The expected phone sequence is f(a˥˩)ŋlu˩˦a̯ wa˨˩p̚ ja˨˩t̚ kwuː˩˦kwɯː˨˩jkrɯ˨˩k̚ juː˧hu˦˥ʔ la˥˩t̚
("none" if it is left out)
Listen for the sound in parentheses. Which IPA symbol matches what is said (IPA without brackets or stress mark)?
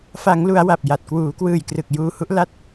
a˩˦